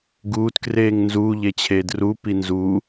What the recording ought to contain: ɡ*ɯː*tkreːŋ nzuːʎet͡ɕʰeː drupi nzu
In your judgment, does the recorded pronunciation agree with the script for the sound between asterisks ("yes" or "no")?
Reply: no